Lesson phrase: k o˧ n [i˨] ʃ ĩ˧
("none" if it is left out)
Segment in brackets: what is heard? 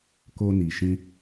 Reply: i˨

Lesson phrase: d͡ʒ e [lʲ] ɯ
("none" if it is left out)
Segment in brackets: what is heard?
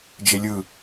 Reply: lʲ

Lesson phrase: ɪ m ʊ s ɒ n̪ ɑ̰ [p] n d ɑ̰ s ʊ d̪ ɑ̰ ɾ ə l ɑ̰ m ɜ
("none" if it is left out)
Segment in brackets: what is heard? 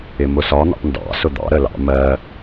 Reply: p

